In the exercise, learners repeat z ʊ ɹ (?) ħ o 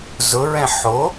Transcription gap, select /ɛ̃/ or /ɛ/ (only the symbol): ɛ̃